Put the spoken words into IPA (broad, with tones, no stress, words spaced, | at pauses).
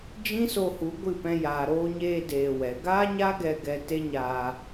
d͡ʒĩ˦so˧hu˨˦ ɡʷɨ˦˨pɛ̃˧ jaː˨ɾoː˧ɲeː˧ deː˧wɛ˨˦ ɡaː˦ɲa˦ɡɛ˧ ɡɛ˧te˦ɲaː˧